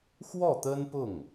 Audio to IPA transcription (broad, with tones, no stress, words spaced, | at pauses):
xwɔ˥˩t̪ə˥npʊ˥˩ŋ